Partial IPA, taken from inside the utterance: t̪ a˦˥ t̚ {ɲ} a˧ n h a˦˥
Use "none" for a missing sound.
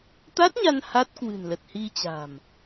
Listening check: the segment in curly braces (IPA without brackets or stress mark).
ɲ